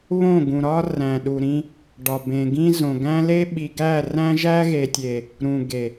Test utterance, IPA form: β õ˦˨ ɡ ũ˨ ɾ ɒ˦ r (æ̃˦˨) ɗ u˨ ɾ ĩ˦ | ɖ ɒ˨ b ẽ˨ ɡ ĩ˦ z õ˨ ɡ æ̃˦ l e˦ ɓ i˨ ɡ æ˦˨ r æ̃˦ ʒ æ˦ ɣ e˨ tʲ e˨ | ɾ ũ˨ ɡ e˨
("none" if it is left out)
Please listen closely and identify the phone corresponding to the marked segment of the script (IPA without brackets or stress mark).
æ̃˨